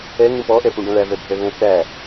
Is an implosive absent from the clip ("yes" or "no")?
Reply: yes